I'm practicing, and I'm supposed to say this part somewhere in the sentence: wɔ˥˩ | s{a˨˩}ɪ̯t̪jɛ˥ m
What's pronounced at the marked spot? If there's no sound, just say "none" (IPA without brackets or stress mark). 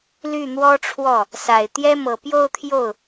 a˨˩